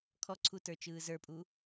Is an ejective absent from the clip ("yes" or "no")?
no